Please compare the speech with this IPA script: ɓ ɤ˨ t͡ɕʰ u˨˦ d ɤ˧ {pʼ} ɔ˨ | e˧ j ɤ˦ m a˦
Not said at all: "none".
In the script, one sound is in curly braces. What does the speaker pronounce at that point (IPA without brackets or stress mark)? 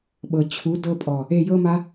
pʼ